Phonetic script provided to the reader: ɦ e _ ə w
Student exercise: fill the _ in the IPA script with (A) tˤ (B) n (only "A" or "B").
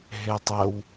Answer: A